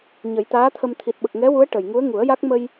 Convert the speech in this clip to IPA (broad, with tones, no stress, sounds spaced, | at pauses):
ɲ ə˨˩˦ j t̪ aː˧˥ t̪ʰ ə˧ m t̪ʰ i˨˩ t̚ ɓ ə˨˩ k̚ ŋ ɛ˧˥ w u˧˥ ə̯ ʈ ə˨˩ j ŋ u˧˥ ə̯ ŋ u˨˩˦ ə̯ j a˦˥ k̚ m ə˧ j